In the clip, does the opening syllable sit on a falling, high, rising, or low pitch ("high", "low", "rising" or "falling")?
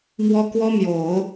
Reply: high